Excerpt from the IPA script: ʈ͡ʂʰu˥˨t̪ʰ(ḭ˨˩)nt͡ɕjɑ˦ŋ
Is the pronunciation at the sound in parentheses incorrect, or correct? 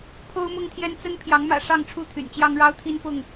incorrect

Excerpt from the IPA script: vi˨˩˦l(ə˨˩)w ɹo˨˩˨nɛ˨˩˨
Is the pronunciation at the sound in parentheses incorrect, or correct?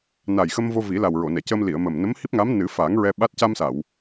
incorrect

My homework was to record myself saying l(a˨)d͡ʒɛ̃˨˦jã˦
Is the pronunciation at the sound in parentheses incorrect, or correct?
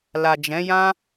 correct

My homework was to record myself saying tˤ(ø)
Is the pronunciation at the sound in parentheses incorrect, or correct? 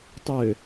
correct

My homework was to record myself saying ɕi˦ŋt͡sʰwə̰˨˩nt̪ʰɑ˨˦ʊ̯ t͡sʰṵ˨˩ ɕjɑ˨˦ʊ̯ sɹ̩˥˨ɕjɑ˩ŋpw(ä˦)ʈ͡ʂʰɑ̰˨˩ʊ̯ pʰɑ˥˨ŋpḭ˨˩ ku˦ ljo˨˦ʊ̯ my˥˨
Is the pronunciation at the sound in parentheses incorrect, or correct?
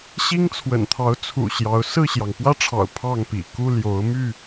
correct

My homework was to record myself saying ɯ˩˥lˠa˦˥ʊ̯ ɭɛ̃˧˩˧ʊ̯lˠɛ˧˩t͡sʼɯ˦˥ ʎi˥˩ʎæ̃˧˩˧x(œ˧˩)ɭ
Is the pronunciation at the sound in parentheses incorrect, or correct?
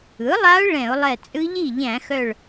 correct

